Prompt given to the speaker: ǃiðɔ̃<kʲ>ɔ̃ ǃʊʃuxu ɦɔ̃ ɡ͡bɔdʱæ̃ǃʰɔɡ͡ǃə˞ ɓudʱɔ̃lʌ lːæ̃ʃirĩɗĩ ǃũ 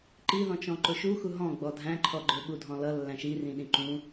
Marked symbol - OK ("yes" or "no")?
no